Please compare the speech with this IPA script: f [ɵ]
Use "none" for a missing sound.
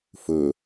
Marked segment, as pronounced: ɵ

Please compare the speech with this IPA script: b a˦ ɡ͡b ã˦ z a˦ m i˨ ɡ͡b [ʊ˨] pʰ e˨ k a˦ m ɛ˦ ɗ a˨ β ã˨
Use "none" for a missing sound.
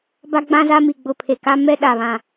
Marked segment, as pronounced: ʊ˨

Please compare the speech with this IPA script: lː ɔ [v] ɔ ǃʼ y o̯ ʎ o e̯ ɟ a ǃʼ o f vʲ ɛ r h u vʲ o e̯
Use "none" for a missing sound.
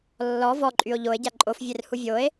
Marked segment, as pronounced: v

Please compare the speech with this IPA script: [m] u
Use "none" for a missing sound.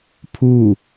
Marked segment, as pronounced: pʰ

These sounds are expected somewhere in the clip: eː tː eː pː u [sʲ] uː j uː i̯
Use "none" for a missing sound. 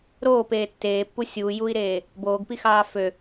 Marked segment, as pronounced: sʲ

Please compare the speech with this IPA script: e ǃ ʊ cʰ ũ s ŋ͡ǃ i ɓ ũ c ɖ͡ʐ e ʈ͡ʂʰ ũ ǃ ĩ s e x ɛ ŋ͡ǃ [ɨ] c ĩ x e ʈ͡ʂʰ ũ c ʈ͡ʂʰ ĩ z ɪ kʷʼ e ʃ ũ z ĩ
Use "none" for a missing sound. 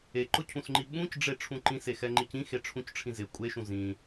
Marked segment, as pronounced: i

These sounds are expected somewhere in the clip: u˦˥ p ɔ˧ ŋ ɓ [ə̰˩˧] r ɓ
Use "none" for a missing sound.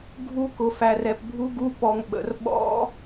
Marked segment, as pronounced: ə̰˩˧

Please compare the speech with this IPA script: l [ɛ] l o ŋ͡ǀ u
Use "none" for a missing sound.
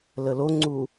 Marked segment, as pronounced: ə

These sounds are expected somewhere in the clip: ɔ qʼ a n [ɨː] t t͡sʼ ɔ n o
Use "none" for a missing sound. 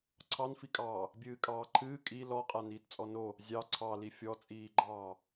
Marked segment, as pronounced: iː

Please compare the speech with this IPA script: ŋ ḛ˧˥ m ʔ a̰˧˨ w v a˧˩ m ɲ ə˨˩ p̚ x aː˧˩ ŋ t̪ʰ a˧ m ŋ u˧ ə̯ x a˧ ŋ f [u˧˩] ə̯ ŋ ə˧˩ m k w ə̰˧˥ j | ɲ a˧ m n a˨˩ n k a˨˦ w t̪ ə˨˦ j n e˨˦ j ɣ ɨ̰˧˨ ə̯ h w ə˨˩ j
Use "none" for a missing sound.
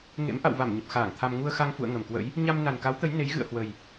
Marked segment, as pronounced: ṵ˧˨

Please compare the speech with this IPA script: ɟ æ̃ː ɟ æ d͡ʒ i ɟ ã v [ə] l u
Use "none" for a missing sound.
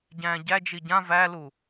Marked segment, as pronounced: æ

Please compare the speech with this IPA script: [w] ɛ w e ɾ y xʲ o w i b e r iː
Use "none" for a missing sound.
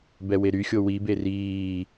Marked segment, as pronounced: b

